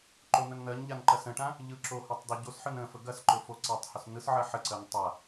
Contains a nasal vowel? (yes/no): yes